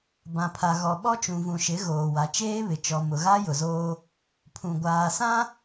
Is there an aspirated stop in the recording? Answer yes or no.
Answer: yes